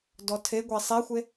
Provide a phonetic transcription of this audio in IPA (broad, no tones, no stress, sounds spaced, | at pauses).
d ɔ tʰ e ɡʷ e sˤ e xʷ e